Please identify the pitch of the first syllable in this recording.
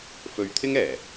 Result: low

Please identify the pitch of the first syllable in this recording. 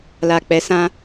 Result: low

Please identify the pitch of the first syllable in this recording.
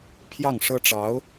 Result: falling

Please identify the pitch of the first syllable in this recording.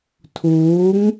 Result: rising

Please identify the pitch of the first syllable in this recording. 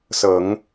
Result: low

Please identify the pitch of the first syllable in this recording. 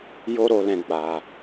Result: high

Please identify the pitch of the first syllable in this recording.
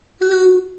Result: high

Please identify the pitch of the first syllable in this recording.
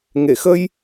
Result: low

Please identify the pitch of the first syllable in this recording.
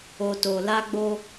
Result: low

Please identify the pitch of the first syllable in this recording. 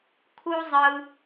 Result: high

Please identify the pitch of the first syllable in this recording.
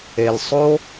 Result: low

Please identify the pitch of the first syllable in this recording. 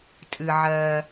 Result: low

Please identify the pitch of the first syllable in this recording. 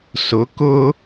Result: rising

